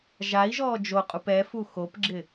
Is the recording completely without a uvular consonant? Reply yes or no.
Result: no